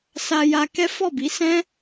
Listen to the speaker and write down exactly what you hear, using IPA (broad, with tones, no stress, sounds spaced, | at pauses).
s a˧ j a˧ k ɛ˦ f ɔ˦˨ b i˨˦ s ɛ̃˦